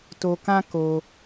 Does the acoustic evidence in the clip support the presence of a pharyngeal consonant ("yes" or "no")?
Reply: no